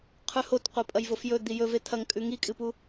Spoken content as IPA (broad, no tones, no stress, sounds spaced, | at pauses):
qʰ ʉ h o t qʷ e pʼ ɐ j v o f j ɵ d̪ i j ɵ v e t̪ʰ ɐ ŋ kʼ ʉ ŋ i kʼ ɨ p u